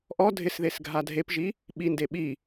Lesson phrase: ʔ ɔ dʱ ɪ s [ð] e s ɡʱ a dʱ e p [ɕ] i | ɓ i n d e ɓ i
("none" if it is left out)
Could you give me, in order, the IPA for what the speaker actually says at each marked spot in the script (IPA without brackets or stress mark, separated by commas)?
ð, ʒ